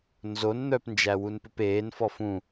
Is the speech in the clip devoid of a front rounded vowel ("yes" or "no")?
no